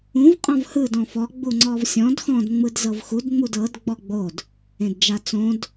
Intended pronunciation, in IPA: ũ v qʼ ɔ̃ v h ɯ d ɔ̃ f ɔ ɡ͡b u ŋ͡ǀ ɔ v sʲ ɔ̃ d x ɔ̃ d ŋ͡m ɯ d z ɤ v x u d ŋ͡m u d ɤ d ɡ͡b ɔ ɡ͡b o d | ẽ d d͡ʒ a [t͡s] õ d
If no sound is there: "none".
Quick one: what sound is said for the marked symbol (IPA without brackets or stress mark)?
t͡s